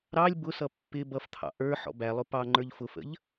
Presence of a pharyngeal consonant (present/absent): present